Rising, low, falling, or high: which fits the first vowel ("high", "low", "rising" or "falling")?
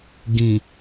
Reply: low